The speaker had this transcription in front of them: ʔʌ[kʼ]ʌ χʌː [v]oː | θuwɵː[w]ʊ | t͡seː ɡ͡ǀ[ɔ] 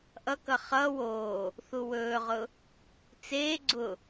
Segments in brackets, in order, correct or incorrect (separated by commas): incorrect, incorrect, incorrect, incorrect